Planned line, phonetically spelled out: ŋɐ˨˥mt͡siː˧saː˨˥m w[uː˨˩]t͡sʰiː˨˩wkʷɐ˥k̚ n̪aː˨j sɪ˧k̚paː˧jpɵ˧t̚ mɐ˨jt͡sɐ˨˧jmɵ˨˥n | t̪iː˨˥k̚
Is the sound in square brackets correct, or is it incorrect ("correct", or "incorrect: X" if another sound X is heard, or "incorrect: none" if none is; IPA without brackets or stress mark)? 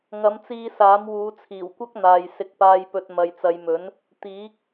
incorrect: uː˨˧